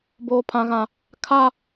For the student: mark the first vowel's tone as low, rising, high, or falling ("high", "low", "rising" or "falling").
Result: high